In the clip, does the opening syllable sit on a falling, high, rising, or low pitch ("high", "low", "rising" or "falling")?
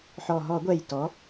low